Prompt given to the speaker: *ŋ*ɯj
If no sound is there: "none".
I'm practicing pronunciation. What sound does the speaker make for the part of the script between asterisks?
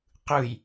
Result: q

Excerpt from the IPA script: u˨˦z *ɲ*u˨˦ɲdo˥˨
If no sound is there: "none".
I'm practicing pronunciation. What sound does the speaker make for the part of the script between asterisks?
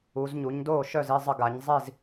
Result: ɲ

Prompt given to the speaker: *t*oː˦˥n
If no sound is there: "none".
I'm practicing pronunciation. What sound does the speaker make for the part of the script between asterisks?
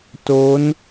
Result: t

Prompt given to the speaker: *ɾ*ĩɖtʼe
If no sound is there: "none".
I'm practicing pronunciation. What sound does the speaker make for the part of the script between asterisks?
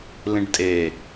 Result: l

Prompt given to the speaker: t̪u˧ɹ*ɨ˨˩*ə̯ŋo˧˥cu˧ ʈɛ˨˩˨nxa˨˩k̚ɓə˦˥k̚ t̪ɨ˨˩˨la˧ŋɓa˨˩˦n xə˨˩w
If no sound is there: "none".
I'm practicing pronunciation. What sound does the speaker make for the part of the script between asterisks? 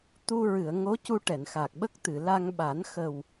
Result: ɨ˨˩˨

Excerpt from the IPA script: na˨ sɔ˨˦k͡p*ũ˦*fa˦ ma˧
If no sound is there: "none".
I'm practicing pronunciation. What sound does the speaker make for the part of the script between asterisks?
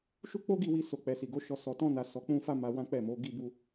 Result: ũ˦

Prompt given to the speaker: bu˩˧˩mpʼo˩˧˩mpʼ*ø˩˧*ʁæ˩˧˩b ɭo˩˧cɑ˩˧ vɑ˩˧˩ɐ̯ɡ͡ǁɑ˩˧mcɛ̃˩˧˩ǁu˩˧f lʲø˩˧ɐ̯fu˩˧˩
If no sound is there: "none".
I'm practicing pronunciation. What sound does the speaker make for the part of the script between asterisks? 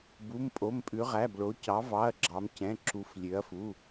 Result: ʉ˩˧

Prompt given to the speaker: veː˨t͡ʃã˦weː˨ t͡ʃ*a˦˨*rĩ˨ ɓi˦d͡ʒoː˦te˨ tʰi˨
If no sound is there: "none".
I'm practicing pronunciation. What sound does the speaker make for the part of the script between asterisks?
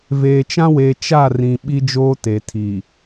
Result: a˦˨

